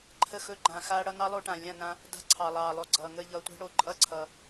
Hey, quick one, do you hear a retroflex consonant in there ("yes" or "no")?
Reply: yes